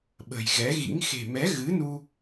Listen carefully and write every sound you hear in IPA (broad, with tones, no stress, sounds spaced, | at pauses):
ɓ ə̤˨˩ j ɣ ɛ˨˦ ɣ ḭ˧˥ ŋ x e̤˨˩ m ɛ˨˦ ɣ ɨ˨˦ n u˧